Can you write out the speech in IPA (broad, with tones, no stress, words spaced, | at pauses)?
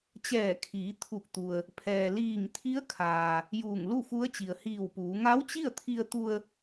t͡ɕɛː˧˩kʰiː˩˧ t̪ʰu˧˩k̚t̪u˩ə̯ | pʰɛː˩liː˧˩ŋ t̪ʰi˧˥ə̯kʰaː˩ | juː˧˩ŋlu˥˨fu˧˥ə̯t͡ɕi˩ə̯ hiː˧˩wpuː˩˧ ŋa˧˥wt͡ɕi˥˨ə̯t̪ʰi˧ə̯t̪u˧ə̯